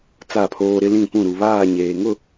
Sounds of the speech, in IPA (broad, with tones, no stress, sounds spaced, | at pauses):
t͡s a˦˨ pʰ oː˦ ɾ ɪ˦ l ĩ˦˨ p ũ˦˨ ɾ u˨ β aː˦˨ ɲ eː˨ ŋ ʊ˦˨